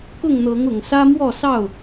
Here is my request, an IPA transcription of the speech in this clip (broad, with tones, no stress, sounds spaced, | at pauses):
k ʊ˥˨ ŋ n̪ ɤ˨˦ ŋ ʊ˨˩ ŋ s ä˦ m w ɔ˥˨ s ɑ˥˨ ʊ̯